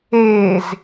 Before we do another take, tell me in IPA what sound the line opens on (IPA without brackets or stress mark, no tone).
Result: e